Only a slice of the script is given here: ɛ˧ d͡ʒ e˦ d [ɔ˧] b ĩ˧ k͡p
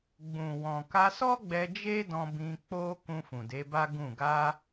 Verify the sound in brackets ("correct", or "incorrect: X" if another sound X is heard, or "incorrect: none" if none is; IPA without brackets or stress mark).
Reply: incorrect: ɔ̃˧